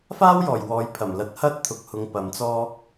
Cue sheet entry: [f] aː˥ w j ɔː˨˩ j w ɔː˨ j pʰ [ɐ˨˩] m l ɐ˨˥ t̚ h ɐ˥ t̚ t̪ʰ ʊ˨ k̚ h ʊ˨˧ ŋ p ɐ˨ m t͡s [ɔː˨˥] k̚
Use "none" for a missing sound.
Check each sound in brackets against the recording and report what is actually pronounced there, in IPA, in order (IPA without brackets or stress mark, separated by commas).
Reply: f, ɐ˨˩, ɔː˥